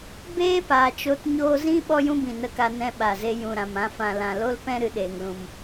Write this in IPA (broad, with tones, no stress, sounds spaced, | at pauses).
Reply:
b eː˦ p aː˨ t͡ʃ o˧ t ɲ oː˧ z ĩ˦ ɓ ɔ˦ j ũ˦ b ĩ˨ n ə˧ k a˧ n ɛ̃˧ ɓ a˨ z e˧ j ũ˨ ɾ ã˨ m ã˧ f ã˨ l ã˨ l o˦ l p ɛ̃˦ ɾ ɨ˧ ɗ eː˨ ŋ l ũ˨ m